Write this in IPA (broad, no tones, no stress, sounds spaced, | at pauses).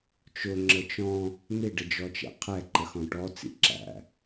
t͡ʃ ʊ ŋ͡ǁ ə t͡ʃ ɔ̃ | n̪ ɪ ɖ ə d͡ʒ ɔ t͡ʃ ɛ̰ qʰ ɛ ǃ ə x ɔ̃ ʈ ɔ t͡s ḭ ǁ æ̰